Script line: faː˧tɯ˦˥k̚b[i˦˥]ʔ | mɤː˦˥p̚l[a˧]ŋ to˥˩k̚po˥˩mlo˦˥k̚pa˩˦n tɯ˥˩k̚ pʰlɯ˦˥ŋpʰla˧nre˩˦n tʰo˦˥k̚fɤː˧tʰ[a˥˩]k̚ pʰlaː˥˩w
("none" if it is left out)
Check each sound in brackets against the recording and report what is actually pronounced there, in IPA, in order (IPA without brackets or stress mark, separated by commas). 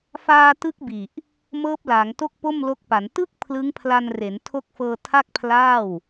i˨˩, a˩˦, a˥˩